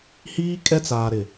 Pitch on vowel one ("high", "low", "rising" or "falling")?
high